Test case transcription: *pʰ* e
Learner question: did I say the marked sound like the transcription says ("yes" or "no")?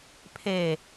yes